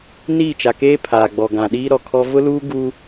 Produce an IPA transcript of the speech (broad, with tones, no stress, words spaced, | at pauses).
niː˦˨t͡ʃa˨keː˦ pʰaː˨ɡ͡bɔ˨ ɡã˨ɗiː˦ ɾɔ˨ kʰɔ˦ vʊ˦luː˦ɡu˦